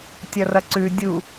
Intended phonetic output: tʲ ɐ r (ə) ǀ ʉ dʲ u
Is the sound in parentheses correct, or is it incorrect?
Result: incorrect